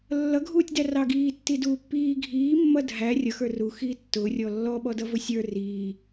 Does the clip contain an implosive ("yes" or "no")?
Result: yes